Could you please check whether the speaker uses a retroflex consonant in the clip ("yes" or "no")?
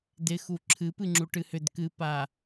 yes